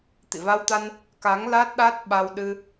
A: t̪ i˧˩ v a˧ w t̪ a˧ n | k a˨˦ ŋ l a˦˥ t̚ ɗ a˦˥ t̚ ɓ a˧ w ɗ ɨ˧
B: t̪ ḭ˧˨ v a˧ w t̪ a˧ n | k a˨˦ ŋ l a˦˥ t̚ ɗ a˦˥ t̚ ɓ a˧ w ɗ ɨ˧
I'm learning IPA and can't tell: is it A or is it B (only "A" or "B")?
B